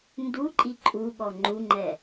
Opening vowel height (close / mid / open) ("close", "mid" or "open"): close